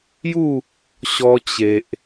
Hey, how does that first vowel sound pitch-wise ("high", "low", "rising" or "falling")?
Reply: falling